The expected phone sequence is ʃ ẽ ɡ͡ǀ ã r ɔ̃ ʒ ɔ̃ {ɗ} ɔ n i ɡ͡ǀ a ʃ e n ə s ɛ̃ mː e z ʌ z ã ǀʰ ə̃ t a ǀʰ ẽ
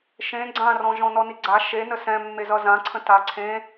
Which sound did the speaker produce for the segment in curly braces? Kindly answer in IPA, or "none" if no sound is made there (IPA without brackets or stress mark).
n